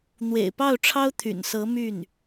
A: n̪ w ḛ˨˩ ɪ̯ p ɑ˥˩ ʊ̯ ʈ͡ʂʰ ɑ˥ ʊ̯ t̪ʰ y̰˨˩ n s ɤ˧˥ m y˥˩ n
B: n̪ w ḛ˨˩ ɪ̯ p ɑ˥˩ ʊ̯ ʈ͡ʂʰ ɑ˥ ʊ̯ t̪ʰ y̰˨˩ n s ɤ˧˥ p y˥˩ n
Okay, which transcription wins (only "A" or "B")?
A